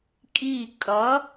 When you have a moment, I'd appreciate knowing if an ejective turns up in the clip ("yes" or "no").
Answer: yes